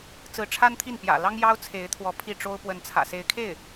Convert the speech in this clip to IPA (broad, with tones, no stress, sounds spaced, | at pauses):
t͡s ɹ̩˧˥ ʈ͡ʂʰ a˥ n t̪ʰ i˥˩ n p j ä̰˨˩ l ɑ˥ ŋ j ɑ˥ ʊ̯ t͡sʰ e˧˥ ɪ̯ t̪ʰ w ɔ˧˥ pʰ i˥˩ ʈ͡ʂ o˥ ʊ̯ p w ə˧˥ n t͡sʰ ä̰˨˩ s e˧˥ ɪ̯ kʰ e˥˩ ɪ̯